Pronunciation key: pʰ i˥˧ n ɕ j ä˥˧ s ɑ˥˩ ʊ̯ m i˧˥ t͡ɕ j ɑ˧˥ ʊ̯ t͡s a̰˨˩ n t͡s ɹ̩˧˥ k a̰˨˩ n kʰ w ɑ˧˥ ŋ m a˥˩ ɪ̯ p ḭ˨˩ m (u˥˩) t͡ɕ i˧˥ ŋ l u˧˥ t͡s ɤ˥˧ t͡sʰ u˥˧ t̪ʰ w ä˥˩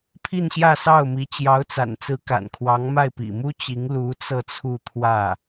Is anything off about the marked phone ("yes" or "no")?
yes